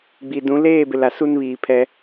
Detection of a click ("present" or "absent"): absent